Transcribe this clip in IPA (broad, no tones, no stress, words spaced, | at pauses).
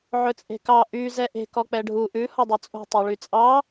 ʕɵt͡sʼe̤kɑ ʔy zɛʔe̤ kɔk͡pɛɖʱu ʔʉ hɔdˤɵt͡sʼo̤ tˤøɭyt͡sʼɑ